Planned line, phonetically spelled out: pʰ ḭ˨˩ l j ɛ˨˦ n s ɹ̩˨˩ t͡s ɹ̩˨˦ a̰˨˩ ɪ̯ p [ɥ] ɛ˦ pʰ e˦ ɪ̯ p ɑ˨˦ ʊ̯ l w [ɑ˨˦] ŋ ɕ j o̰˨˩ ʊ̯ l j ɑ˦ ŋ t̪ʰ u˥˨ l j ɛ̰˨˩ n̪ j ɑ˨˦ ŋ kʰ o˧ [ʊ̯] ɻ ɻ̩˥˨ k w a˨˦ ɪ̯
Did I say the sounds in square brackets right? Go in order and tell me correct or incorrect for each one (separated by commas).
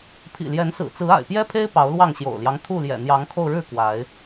incorrect, incorrect, correct